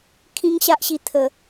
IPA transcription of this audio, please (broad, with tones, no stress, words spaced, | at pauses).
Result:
kʰĩ˦ŋɕa˦ʔɕi˧ t̪ʰə˨˩